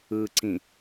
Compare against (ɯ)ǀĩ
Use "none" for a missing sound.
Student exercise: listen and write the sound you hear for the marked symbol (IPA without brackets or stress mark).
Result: ɯ